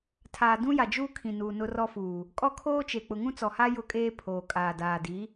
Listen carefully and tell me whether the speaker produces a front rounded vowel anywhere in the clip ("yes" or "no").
no